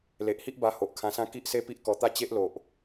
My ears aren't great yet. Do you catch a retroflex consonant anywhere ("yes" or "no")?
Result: no